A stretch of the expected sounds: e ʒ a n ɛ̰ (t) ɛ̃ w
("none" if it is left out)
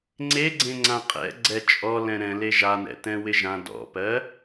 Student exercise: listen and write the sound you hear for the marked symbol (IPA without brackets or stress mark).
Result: t